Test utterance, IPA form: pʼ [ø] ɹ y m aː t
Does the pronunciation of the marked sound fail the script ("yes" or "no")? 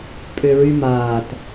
no